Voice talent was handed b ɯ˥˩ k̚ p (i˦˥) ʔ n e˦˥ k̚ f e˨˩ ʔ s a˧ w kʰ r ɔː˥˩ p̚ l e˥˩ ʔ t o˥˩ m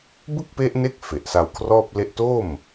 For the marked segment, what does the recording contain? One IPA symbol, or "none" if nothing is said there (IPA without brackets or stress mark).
e˦˥